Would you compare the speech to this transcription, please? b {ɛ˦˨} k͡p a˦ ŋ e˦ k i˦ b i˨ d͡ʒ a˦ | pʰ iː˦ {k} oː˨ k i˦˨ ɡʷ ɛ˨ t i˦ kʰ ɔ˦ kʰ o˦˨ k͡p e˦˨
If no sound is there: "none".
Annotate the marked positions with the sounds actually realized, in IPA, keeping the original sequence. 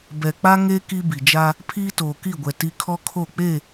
ɛ˨, t

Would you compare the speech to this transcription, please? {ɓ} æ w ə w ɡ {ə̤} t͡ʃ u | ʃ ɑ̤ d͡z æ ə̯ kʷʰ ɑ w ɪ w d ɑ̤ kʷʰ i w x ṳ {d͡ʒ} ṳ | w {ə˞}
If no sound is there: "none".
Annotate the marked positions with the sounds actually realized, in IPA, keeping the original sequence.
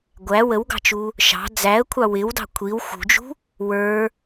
ɡʷ, ɑ̤, d͡ʒ, ə˞

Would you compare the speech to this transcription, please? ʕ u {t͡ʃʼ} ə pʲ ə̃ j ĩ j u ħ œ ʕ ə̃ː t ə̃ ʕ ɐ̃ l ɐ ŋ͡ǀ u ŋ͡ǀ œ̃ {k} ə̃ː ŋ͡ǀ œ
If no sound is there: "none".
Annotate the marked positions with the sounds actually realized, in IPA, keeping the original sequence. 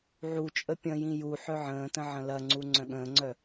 t͡ʃʼ, ɠ

